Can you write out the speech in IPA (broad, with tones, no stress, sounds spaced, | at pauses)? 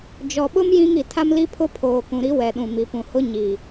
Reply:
d͡ʒ ɔ˨ ɓ ʊ˦ m j ĩ˦ ŋ i˨ tʰ a˦ m l i˦ pʰ ʊ˦ pʰ oː˨ k ũ˨ ɾ i˦ w ɛ˨ ɗ ũ˨ m i˨ p ũ˨ h ʊ˦ ɲ i˨